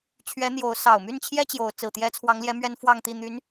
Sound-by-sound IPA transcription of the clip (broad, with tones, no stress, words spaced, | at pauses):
t͡ɕʰɥɛ˧˥ n̪jo˧˥ʊ̯ sɑ˨˩ʊ̯my˥˩nt͡ɕʰjɛ˥ t͡ɕjo˧˥ʊ̯ t͡sɹ̩˨˩t̪jɛ˥ t͡sʰwɑ˧˥ŋljɛ˧˥ mɥɛ˥nfwɑ˥˧ŋt̪i˥˩ n̪y˧˥n